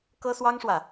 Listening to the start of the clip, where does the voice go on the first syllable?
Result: high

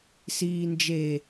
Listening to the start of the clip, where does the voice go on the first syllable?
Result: low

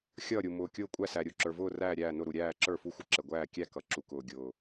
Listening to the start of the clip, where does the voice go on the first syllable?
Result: falling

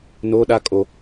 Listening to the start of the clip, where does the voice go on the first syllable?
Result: high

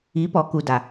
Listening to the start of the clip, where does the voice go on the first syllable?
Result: rising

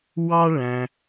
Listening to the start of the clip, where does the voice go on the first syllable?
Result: high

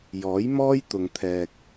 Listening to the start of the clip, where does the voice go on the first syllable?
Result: rising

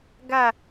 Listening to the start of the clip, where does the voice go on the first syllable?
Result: falling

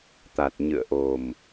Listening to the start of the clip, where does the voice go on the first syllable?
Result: low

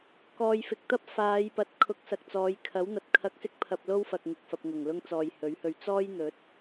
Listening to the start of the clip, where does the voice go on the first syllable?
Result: low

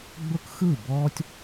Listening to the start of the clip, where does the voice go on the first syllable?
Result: high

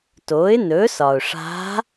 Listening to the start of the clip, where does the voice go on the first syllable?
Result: rising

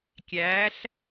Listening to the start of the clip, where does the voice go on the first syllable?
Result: rising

